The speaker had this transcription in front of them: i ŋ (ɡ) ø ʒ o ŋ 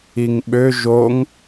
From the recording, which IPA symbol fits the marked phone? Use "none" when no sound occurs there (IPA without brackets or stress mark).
ɓ